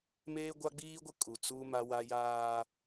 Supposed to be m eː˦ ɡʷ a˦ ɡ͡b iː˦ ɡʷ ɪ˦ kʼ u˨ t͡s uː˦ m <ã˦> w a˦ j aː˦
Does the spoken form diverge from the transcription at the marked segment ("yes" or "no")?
yes